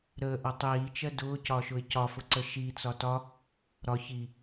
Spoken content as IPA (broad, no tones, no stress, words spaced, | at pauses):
ɾəːʔʌ tˤiːt͡ʃɜ dʊːcɒʃʊɪ̯ cɒfʊǀə ʃit͡sɒ tɒ | ɾɒ çi